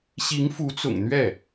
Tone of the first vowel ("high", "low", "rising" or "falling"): rising